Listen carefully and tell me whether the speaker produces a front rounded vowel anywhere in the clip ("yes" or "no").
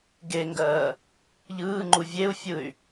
yes